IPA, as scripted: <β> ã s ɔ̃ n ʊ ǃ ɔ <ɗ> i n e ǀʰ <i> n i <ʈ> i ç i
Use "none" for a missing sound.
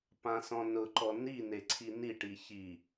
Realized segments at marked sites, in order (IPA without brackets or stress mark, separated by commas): p, n, i, ʈ